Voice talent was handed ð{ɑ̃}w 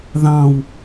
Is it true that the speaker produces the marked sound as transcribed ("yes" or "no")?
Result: yes